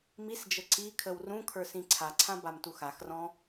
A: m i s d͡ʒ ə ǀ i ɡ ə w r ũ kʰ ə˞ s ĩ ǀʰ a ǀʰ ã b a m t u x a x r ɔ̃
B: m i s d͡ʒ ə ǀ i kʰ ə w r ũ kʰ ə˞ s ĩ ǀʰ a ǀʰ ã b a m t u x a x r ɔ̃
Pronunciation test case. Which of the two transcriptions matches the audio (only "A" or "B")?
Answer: B